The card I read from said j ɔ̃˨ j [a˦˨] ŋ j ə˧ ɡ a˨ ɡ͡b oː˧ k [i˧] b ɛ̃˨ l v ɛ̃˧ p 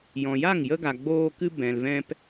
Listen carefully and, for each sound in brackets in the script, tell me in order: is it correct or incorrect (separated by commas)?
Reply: correct, incorrect